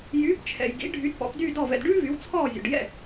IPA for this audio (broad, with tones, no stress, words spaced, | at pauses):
jyː˩˥p t͡ʃʰɛ̰˩j ɡḭ˩˥ ɖʱy˩˥dpɔ̰˩˥pdyː˥˩ dɔ˥˩vɛ̰˧d ɖʉː˥vy˩˥w t͡sʰɔː˥˩zʲɔ̰˩ɖjɛ̰˥˩